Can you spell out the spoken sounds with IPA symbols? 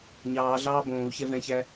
ɲ ɑː ɮ ɑː b õː u̯ ç ɛ v ɛ̃ ç æ

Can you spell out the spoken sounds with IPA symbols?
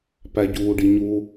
p æ ɟ uː ɖ i ɲ u

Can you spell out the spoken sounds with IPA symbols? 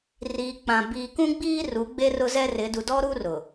r iː˨ k͡p ã˨ b iː˨ k ũ˦ ɡ͡b iː˦ r u˨˦ ɡ͡b e˦ r ʊ˦ z ɛ˦ r ɪ˨˦ d u˨ d ɔ˦ ɾ u˦ r ʊ˨

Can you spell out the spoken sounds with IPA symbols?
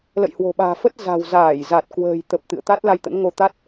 l ə̰˧˨ j h w o̤˨˩ ɓ a̤ː˨˩ f ə˦˥ t̚ z a̤˨˩ w z aː˧˩ j z a˨˩ t̚ k w ə̤ː˨˩ j t̪ ə˨˩ p̚ t̪ ɨ̰˧˨ ə̯ t̪ a˦˥ t̚ l a˧ j t̪ ə̰˧˥ n ŋ o˧ t̪ a˦˥ t̚

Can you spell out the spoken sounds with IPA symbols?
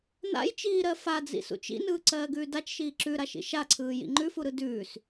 n a̰ j t͡ʃ iː ɾ ɜ f a d͡z ḭ s ṵ t͡ʃ ḭ n ɯː ǀ ɜː ɡ ʉː d a t͡ʃ ʃ iː ǁ ʉ ɾ a ʃ ḭ ʃ a ǀʰ ɯː j ḭ ŋ͡ǃ ʉ f u ɾ ɯ d ʉː s

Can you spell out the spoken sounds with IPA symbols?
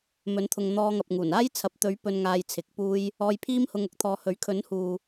m ɵ˨˥ n t̪ʰ ʊ˨ ŋ n̪ ɔː˧ ŋ ɐ˨ p̚ ŋ uː˨˩ n aː˥ j t͡sʰ ɐ˨˥ p̚ t̪ ɵ˨˥ ɥ p ɵ˨ n ŋ aː˨ j t͡sʰ ɪ˨˥ k̚ p uː˧ j | ɔː˧ j pʰ iː˥ m h ʊ˧ ŋ ʊ˨˥ k̚ t̪ʰ ɔː˨ h ɵ˨˥ ɥ kʰ ɵ˨˥ n h uː˨

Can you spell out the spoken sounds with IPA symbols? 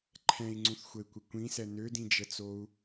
ǃʰ ɛ̃ i̯ ŋ͡ǀ ũ θ xʷ ə i̯ kʷ ɪ kʷ ĩ s ɛ n ø d ĩ d͡ʒ ə t͡s o u̯

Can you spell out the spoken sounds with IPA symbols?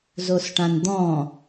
z o s ʈ ã n d̪ ɔ̃

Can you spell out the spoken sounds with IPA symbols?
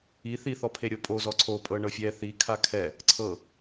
i θ i θ ɔ pʰ e ɾʲ o pʼ o z ɔ ǀʰ o pʼ ɤ ɳ ɤ fʲ ɛ θ i kʰ a kʰ ɛ | ǀʰ ɤ

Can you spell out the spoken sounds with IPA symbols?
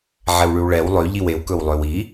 ʕ ɛ w ɭ ʉ w ɭ ɛ w lˠ ø ʎ i w e w k ɵ w lˠ ø w i

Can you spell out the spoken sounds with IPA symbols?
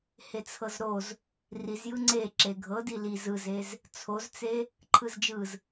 h e t͡sʰ ɤ z ɾ o z | r i z j ɯ ŋ͡ǀ e ǁ e ɡʱ ɤ d i l i z ɯ z e z | t͡sʰ o z t͡s e | ǃʰ ɯ z d͡ʒ ɯ z

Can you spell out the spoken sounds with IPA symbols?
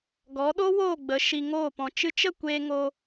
ɡ ɔ˨˦ ɗ o˦ w oː˦˨ ɡ͡b ə˨˦ ʃ i˧ ŋ oː˦˨ p ɔ̃˧ t͡ʃ ɨ˧ t͡ʃ ə˦˨ kʷ eː˧ ŋ o˧

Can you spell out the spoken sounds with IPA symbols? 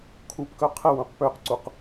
kʰ u p k œ qʰ ə w ũ q p ø q ǀ u q

